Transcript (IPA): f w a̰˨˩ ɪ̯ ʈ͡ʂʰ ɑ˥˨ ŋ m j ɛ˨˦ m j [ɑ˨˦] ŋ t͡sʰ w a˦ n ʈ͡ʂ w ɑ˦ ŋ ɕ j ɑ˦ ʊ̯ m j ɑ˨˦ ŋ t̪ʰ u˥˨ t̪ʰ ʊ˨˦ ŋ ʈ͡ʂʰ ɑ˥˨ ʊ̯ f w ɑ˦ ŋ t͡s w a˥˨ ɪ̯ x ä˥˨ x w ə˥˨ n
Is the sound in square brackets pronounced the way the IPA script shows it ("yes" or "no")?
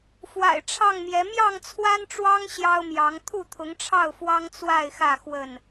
no